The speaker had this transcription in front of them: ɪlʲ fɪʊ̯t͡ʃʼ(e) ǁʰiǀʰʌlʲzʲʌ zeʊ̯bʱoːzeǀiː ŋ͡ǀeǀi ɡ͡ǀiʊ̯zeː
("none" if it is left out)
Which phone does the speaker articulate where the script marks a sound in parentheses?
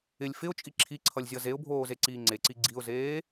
i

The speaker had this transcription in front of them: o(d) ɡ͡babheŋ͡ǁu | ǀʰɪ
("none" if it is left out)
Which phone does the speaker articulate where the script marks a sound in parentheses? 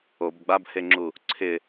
b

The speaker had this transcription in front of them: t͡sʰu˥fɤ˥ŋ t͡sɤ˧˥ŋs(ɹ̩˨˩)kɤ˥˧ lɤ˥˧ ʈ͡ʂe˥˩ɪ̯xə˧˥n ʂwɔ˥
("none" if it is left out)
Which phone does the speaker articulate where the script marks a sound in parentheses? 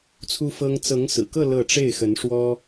ɹ̩˨˩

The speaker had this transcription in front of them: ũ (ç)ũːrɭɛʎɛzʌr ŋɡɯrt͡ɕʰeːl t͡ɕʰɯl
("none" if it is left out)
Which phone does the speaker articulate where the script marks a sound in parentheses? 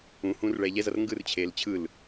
h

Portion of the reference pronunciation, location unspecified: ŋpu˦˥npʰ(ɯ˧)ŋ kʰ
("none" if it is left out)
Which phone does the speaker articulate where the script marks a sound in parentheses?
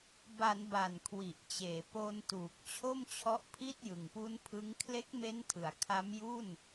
ɯ˦˥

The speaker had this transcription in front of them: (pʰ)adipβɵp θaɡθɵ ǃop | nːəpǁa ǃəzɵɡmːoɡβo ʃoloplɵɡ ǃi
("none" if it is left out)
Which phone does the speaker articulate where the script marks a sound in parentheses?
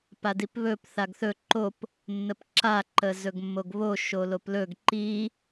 p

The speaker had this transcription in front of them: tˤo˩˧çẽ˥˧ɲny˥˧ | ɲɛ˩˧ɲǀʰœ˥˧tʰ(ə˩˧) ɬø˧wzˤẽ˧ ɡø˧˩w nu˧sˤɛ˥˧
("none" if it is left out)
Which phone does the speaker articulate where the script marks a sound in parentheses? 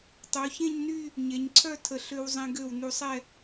ə˧˩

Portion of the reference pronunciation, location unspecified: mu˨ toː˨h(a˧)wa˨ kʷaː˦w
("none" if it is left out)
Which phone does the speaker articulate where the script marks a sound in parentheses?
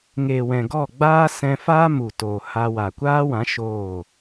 a˧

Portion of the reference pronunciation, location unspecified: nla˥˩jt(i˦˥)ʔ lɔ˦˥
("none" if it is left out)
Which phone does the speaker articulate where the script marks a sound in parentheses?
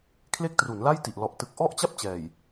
i˨˩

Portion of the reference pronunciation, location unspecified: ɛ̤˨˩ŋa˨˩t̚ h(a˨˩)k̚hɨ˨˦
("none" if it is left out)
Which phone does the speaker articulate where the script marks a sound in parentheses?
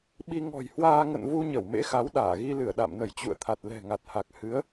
a˨˩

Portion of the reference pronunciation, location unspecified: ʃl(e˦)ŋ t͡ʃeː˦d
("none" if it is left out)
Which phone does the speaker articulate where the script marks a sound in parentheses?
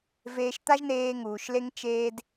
e˦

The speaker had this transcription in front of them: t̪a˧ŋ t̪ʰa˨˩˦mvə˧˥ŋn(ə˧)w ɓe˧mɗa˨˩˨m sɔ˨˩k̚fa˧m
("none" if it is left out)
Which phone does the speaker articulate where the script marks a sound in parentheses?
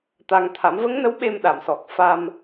ə˧˥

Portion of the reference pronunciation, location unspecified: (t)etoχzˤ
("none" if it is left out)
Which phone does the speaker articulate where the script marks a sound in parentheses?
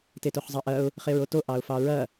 t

